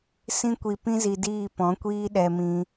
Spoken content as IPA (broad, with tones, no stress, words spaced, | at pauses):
sĩ˦kʷi˧ pĩ˦zi˧diː˦˨ pɔ̃˨˦kʷiː˦ ɗɛ˧mĩ˧